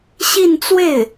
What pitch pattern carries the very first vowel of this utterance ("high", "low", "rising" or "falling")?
falling